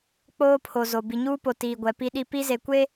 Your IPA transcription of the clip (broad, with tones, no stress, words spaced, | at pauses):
k͡poː˦pʰo˨zo˨ bi˨ɲuː˦po˨ tiː˨ɡʷɛ˨pi˦ɗi˦ pi˦ze˨kʷe˦